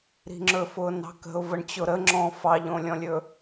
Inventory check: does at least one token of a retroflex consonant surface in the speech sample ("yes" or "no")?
yes